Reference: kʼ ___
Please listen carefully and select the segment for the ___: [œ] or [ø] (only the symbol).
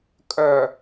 œ